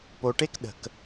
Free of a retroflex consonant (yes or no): no